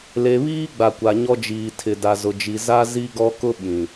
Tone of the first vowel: low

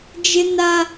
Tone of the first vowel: high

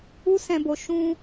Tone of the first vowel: high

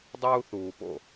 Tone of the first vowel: high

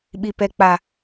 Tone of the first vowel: low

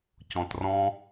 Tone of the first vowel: low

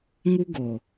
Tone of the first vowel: high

